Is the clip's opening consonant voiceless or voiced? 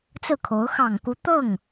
voiceless